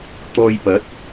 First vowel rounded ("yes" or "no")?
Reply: yes